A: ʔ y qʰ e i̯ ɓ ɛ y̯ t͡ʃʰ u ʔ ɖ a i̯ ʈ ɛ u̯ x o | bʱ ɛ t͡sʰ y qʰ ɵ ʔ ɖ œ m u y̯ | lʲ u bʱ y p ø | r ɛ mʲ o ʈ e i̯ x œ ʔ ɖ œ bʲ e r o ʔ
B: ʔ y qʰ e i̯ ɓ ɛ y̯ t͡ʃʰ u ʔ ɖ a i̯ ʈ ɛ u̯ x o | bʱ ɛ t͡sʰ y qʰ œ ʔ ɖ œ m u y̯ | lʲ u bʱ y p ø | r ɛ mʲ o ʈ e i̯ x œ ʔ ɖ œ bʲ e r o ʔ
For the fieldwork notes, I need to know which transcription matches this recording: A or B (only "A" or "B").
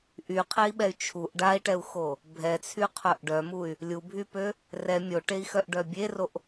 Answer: B